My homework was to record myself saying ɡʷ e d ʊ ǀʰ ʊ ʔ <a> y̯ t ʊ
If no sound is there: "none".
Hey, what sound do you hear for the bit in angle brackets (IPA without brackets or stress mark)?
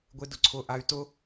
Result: a